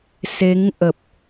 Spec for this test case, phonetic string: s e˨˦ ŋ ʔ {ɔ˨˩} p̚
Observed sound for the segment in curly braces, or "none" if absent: ə˨˩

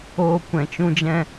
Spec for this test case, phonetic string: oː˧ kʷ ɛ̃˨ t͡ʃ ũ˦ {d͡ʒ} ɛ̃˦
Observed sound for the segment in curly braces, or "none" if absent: d͡ʒ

